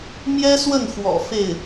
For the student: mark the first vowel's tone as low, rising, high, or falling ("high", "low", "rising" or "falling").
high